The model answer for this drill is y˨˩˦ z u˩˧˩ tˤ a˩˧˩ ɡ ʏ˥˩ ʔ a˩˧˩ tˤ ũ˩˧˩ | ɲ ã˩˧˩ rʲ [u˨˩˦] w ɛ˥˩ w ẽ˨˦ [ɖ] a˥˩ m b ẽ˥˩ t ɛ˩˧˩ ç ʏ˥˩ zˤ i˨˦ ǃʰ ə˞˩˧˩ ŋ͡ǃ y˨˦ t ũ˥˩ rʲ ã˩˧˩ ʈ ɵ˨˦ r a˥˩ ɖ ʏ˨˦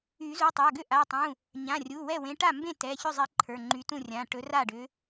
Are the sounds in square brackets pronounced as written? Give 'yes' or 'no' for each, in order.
no, no

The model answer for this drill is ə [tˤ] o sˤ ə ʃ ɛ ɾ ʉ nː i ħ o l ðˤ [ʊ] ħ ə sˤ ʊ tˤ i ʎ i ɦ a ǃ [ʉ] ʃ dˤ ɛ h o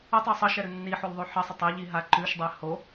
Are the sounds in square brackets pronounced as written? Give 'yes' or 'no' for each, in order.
yes, no, yes

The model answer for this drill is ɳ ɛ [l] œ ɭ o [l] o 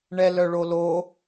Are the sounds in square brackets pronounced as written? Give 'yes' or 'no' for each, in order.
yes, yes

